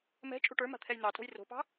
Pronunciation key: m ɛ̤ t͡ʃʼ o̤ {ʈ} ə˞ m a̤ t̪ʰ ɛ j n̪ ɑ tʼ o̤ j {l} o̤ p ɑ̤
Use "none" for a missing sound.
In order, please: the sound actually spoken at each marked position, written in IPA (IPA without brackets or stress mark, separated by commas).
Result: ʈ, r